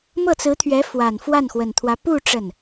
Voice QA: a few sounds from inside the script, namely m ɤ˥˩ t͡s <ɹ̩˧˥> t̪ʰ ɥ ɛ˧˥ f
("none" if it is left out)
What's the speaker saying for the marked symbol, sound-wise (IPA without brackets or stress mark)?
ɹ̩˧˥